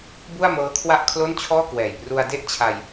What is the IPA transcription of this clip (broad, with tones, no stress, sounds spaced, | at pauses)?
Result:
b u˥˩ a̯ m ɤː˦˥ kʰ w a˥˩ ʔ kʰ l o˥˩ n t͡ɕʰ ɔː˥˩ k w ɛː˨˩ j p r u˧ a̯ d e˥˩ ʔ t͡ɕʰ a˧ j